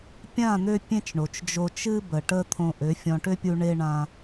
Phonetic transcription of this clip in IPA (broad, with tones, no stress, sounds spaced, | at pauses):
pʲ ã˦˨ n̪ ø˧ pʲ ẽ˦ t͡ʃ ɳ o˨ t͡ʃ d͡ʒ o˧ t͡ʃ ɨ˦ b ə˨ ʈ ə˦ t̪ʰ õ˧ ʔ ø˨˦ fʲ ɔ̃˧ ʈ ø˦ pʲ u˧ ɳ e˦ ɳ ã˦